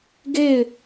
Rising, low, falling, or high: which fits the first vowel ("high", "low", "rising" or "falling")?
falling